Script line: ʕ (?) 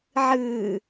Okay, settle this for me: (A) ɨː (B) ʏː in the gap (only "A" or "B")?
A